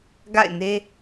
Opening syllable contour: falling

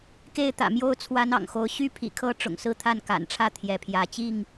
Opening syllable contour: falling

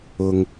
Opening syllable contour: low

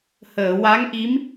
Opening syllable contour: low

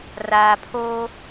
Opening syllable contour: low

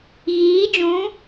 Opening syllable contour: rising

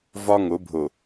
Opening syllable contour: high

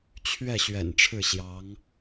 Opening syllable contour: falling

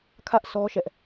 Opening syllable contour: high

